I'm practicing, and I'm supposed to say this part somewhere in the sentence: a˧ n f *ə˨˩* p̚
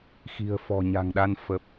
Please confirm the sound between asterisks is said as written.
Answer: yes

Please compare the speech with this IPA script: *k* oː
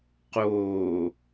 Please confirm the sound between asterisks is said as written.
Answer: no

